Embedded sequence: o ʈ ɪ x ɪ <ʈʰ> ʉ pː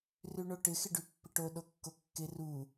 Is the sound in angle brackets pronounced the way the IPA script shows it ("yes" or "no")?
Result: no